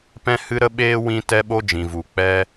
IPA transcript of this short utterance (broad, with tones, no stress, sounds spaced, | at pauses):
p ɛ̃˦ h ɨ˦ ɾ ə˦ ɓ eː˦ w ĩ˦ t ɛ˦ ɓ o˦ d͡ʒ ĩ˨ v u˨ k͡p ɛ˦